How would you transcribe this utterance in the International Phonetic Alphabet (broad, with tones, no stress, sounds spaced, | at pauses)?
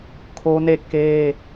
kʰ o˦ n e˦˨ k e˦